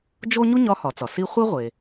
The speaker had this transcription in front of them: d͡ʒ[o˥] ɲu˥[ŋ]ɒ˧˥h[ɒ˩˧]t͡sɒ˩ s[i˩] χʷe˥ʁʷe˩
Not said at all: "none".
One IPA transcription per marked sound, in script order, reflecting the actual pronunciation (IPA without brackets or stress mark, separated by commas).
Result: o˥, ɲ, ɒ˩˧, i˥